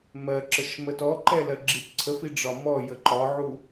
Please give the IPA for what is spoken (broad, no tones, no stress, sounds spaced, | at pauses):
m ɜ ǁ ə ʃ m ə t ɔ ǃ ɛ l ɜ ɡ͡ǁ i t ǀʰ ə f i ɖ͡ʐ ɒ m ɔ j ə ǃ ɒ ʕ u